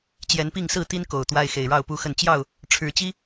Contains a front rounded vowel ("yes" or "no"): no